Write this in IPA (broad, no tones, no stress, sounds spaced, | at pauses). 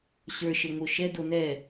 ɕ ə˞ ʃ ə ŋ o ʃ ɛ d o n ɛ